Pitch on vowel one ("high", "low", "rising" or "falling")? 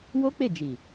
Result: high